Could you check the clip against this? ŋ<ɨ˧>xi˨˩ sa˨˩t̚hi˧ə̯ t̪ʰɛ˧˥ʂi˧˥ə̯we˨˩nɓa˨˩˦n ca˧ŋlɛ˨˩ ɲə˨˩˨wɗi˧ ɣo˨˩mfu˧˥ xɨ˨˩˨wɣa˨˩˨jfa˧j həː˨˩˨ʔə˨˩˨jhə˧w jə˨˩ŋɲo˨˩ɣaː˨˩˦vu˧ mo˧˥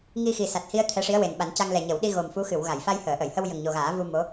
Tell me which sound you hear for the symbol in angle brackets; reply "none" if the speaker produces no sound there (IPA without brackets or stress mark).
i˧